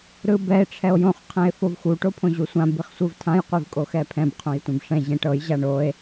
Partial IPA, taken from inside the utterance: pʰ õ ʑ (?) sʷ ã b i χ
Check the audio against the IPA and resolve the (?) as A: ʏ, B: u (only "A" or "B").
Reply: B